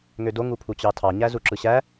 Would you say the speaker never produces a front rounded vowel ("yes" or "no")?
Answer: no